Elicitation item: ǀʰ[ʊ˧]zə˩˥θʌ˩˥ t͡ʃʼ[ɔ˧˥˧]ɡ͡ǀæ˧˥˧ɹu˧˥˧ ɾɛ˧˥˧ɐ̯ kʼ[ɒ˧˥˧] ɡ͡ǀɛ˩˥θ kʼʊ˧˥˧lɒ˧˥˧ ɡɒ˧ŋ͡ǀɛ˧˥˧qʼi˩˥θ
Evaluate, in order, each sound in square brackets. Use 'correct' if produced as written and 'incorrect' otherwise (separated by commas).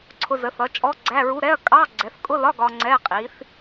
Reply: correct, correct, incorrect